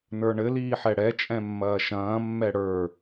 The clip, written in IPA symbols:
n ə˞ ɳ ɘ l iː ħ ɛ ɽ ɛ t͡ʃʼ ɛ̃ mː ɐː ʃ ɐ̃ː mː ɛ ɽ ə˞

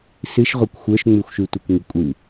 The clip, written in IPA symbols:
s ɨ ʃ ʁʷ ə˞ kʷ xʷ ə˞ ʃ ŋ͡m ʉ xʷ ʃ ʉ tʷ i kʷ ŋ i kʷʼ ɨ

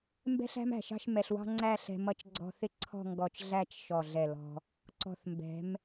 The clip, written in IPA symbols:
m b ɛ̤˥ ɬ æ̤˥ m æ̤˧˩ ʃ ɑ̤˥˧ ʃ m ɛ˧ ɬ w ɑ̤˥ ŋ͡ǀ æ˥˧ ɬ ɛ̤˧ m ʌ˧ t͡ʃ ɡ͡ǀ ɔ̤˧ θ ɪ˥ ǀʰ ɔ̤˥˧ ŋ ɡ ɔ˧˩ t͡ʃ ɮ æ˥˧ t͡ʃ ʃ ɔ˧˩ ɮ ɛ˧˩ l ɔ̤˧ | ǀ ɔ̤˧˩ θ m b ɛ̤˩˧ m

